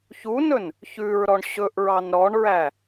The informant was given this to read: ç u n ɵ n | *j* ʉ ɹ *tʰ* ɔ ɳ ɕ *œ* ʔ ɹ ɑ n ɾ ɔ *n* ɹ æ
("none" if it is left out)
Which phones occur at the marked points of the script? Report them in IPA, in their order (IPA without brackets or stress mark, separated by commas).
ç, ɾ, ɵ, ɳ